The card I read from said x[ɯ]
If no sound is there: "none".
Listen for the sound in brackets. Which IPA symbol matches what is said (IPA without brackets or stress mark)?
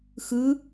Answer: ɯ